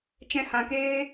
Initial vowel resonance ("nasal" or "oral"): nasal